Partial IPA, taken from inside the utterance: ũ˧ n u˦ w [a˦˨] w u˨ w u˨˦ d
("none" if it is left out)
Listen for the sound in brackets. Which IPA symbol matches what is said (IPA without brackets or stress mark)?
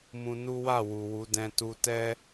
a˦˨